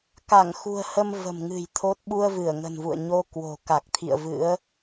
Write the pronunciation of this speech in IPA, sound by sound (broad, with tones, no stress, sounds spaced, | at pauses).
k a˧˩ ŋ x ṳ˨˩ ə̯ h ə˧ m v ə̤˨˩ m ŋ ɨ̤˨˩ j t̪ʰ o˦˥ t̚ ɓ u˧ ə̯ v ɨ˧˩ ə̯ ŋ ə̤˨˩ n v ṵ˧˨ ə̯ ɲ o˧ k w o̤˨˩ k a˨˩ k̚ t̪ʰ ḭ˧˨ ə̯ v ɨ̰˧˥ ə̯